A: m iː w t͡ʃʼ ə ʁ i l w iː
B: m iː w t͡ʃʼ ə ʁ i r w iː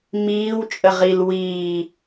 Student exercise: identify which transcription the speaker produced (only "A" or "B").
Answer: A